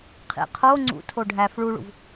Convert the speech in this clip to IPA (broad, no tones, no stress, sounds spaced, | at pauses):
qʰ ḭ qʰ o ŋ͡ǀ ṵ tʰ o ɖʱ æ f ɭ u ɭ ṵ v